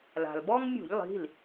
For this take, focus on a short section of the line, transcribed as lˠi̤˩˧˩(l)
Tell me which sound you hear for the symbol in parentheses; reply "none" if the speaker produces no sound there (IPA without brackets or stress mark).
l